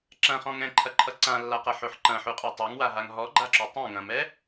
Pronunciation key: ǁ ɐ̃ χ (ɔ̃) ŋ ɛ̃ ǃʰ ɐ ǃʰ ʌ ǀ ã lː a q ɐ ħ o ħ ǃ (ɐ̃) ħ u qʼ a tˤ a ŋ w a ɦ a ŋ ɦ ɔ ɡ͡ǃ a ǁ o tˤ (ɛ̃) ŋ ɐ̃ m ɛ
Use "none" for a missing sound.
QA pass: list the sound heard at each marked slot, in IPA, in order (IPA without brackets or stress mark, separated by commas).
ɔ̃, ɐ̃, ɛ̃